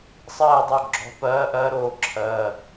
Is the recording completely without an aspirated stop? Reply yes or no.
no